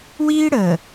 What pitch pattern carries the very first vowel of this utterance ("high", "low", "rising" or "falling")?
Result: high